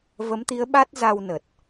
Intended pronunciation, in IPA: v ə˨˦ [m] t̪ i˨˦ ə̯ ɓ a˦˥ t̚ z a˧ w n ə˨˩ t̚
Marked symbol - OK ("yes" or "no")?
yes